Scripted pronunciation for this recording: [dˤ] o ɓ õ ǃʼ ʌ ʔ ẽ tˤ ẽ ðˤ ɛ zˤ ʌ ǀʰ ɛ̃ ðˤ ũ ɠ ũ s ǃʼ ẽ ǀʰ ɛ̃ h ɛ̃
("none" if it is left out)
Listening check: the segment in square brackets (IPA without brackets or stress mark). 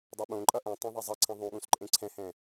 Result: dˤ